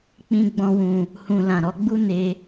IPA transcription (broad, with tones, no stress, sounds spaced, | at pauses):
k͡p ĩ˦ ɡ͡b ɔ̃˦ w ũ˧ | h ũ˧ l ã˨ ɾ ɔ˨˦ ɡ͡b u˦ n e˧